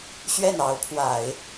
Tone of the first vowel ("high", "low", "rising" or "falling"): falling